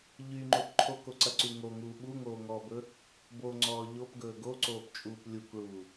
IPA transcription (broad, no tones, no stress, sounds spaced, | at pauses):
ʎ y ŋ͡ǃ o p ǃʰ o k o ǀ ɐ ǀ y ŋ o ŋ uː ɓ u ŋ oː ŋ ɔː b ɵ | b o ŋ͡ǀ ɔː ʎ o p ɡ ɵː ɡ o ǀ oː p t͡ʃʼ uː p lʲ u k ɭ uː